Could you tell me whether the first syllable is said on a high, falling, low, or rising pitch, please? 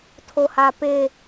high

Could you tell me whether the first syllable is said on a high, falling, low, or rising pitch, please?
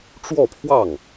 falling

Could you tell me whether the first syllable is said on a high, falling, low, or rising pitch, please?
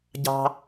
high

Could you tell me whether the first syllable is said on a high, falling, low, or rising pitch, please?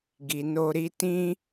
low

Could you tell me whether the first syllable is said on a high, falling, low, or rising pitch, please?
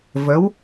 rising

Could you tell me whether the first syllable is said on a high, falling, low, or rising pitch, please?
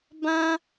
high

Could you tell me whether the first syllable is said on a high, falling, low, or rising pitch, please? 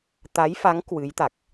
rising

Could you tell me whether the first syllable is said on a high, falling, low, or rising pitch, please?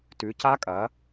rising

